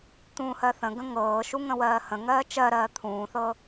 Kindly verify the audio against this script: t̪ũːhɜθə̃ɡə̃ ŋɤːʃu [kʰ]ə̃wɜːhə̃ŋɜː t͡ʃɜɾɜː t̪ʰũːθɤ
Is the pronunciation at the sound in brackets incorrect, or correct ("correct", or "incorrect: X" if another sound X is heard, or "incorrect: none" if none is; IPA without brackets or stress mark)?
incorrect: ŋ